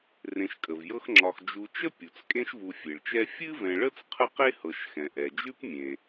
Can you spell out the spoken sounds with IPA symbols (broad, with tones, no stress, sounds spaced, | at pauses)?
r ẽ˨ ʃ kʼ ə˩ v j ɤ˦ x ŋ͡ǁ ɒ˨ x d͡ʒ u˨ t͡ʃ ə˥ pʲ u˩ t͡s kʼ ẽ˦ ʃ v u˨ fʲ e˩ ɭ t͡ʃ ɛ˦ fʲ ɨ˥ v ɛ̃˨ ɭ ə˥ t͡s qʰ ə˥ q e˥ h ɤ˨ ʃ x ɛ̃˩ ʔ ɛ˩ d͡ʒ ʉ˥ p mʲ ẽ˩